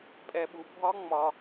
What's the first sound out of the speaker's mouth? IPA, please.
pʼ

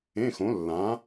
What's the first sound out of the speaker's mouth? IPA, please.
ẽ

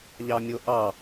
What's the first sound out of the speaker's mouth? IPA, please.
ʎ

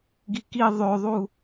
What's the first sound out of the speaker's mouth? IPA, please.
ɡ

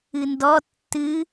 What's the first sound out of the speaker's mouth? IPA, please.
ɨ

